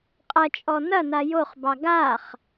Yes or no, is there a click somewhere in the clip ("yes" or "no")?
no